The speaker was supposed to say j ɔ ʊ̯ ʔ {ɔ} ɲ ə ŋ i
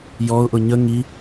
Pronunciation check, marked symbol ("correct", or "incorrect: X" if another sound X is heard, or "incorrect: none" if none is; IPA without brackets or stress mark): incorrect: ʊ